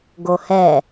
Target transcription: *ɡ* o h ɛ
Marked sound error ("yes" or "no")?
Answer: no